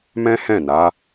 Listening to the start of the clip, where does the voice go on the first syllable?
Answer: high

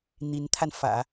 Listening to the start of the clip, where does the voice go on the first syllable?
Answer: rising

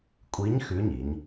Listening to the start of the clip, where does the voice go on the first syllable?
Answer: rising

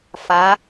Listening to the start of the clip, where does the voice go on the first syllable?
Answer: rising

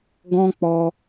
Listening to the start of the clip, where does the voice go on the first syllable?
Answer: high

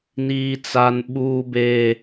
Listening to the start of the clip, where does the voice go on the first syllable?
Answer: high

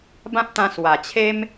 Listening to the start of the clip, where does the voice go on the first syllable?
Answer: high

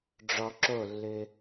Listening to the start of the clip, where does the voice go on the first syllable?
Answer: low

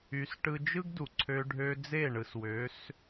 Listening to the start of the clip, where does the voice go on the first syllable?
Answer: rising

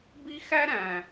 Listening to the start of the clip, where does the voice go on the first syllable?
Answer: high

